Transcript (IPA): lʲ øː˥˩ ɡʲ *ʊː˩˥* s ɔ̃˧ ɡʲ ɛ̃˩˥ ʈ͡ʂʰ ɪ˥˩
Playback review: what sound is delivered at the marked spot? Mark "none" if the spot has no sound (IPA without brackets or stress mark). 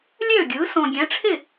ɯː˩˥